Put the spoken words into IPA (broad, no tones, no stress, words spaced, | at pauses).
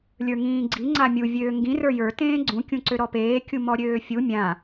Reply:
lʲə˞ŋĩːɡ͡ǀi ŋ͡ǀamʲu vʲøːŋɡĩ rə˞jə˞ tẽːɡ͡ǀũ kʲũǀøɾɔpeː kʲumɔɾʲøːfʲu mʲã